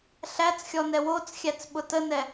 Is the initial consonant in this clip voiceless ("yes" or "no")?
yes